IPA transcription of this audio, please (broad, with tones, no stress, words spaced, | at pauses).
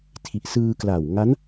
tʰi˨˩ʔsɯː˧kla˨˩wŋa˦˥n